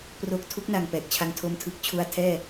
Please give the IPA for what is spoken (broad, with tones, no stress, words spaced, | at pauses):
pro˦˥k̚ tʰu˦˥k̚na˨˩ŋ pɛː˨˩k̚t͡ɕʰa˧ŋtʰo˦˥m tʰɯ˨˩k̚t͡ɕʰu˧a̯ tʰɛː˥˩